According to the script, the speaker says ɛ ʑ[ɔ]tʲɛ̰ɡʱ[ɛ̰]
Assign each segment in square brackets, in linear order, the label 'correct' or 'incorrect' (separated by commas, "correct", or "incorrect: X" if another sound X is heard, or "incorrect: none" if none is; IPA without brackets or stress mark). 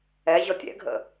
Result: correct, incorrect: ə̰